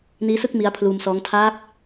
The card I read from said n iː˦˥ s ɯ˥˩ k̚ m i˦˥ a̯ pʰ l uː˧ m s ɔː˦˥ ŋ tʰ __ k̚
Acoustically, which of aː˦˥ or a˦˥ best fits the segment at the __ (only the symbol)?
aː˦˥